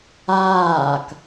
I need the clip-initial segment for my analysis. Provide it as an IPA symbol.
aː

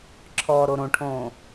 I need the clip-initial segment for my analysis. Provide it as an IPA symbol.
ǁʰ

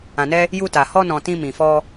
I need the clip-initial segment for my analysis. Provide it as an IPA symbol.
ã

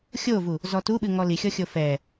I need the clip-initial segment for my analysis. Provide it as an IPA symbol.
xʲ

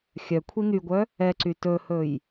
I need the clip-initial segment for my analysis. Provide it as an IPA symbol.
xʲ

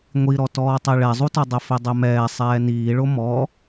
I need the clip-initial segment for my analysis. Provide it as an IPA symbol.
ŋʷ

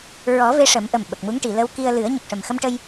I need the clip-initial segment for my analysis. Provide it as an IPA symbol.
ɹ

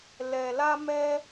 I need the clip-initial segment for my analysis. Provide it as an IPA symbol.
l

